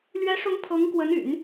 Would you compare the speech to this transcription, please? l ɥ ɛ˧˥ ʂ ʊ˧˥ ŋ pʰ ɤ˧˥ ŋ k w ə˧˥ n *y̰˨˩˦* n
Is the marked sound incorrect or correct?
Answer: correct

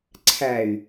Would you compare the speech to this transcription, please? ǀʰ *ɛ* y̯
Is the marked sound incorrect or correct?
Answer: incorrect: æ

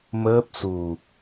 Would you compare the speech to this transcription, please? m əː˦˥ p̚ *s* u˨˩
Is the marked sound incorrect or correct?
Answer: correct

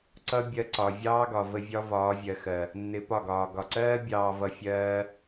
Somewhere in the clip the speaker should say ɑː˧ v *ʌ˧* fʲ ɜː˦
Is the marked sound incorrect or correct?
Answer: correct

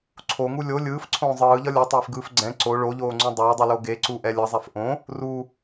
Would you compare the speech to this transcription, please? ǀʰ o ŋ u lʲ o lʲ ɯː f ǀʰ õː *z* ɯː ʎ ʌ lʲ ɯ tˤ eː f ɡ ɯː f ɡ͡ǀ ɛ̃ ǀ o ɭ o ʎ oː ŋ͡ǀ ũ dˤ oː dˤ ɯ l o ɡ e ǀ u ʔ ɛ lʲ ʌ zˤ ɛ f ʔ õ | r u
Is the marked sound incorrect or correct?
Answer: incorrect: zˤ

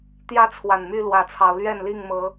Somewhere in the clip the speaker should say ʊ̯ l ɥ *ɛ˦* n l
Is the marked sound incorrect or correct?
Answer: incorrect: ɛ˥˨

